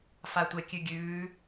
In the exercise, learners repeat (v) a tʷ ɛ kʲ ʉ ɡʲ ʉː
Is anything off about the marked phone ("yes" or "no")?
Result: yes